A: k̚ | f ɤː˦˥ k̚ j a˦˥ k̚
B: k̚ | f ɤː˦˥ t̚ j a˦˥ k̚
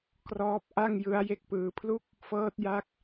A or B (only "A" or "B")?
B